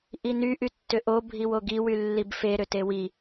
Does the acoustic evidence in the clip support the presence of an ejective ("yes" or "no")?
no